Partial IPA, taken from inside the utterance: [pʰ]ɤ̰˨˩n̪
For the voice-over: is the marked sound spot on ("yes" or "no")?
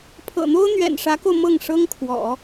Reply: yes